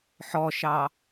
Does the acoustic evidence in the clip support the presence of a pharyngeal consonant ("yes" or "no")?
yes